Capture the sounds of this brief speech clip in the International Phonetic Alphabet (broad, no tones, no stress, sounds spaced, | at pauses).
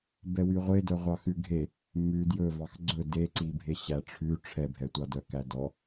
b ɛ w y ʁʷ e d œ ʁʷ ɑ x ʉ ɡʱ e | m ʉ d j ɵ v ɑ x ɡ͡ǀ ɵ d e ǀ i bʱ e ɕ æ ʈ͡ʂʰ ʉ ʈ͡ʂʰ ɛ bʱ ɛ tʷ ɑ d œ k æ d ɔ